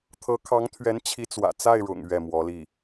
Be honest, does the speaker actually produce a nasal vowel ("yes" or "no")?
no